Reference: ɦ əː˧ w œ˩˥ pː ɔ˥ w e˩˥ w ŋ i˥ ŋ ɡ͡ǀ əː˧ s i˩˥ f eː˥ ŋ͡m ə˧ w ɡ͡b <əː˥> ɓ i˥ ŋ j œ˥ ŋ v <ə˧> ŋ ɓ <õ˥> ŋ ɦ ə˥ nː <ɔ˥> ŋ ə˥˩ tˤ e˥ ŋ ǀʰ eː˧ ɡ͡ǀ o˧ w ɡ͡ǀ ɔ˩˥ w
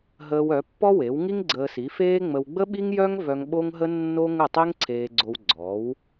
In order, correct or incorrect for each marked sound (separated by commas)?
incorrect, incorrect, incorrect, incorrect